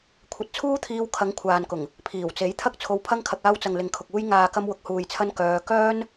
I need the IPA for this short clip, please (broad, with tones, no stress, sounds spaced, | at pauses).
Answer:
kʷʰ ɐ˧ t̚ t͡sʰ uː˥ t̪ʰ iː˧ w kʰ ɐ˨˧ ŋ kʷʰ aː˨ n k ʊ˨˩ ŋ | pʰ iː˨˩ w t͡s e˨˥ j t̪ʰ ɐ˥ k̚ t͡sʰ o˧ w pʰ ɐ˥ ŋ kʰ ɐ˧ k̚ aː˧ w t͡s ɐ˨ ŋ l ɪ˨ ŋ kʰ ʊ˨ k̚ uː˧ j ŋ aː˨ k ɐ˧ m w ʊ˨ k̚ h uː˨ j t͡sʰ ɐ˧ n k œː˧ k œː˥ n